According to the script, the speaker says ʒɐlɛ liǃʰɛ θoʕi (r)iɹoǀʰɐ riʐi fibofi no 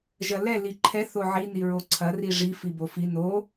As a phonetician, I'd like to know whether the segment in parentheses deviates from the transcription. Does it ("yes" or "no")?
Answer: yes